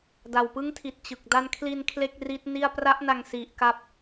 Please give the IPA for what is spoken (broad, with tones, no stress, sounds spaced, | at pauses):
d a˨˩ w p ɯ˦˥ ŋ tʰ i˨˩ t̚ t͡ɕ ɯ˨˩ k̚ d a˥˩ n kʰ l i˧ n kʰ l e˥˩ k̚ r i˦˥ t̚ n i˥˩ a̯ p r a˦˥ ʔ n a˧ ŋ s i˨˩ ʔ k a˦˥ p̚